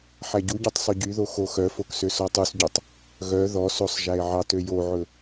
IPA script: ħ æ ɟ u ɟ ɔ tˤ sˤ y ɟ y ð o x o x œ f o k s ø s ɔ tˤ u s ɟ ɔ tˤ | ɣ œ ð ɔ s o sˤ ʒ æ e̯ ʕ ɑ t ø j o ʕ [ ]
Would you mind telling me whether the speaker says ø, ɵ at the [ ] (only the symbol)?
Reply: ɵ